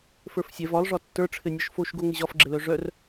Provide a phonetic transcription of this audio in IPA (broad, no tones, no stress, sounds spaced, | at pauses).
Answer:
f ə˞ f sʲ ɛ v ɒ lˠ ʐ ɒ tː ə˞ ʈ͡ʂʰ ɘ nʲ ɒ ʃ f o ʃ ɡ o ŋ ɘ ʑ ɒ f ɡ͡ǁ ɘ l œ ʐ œ r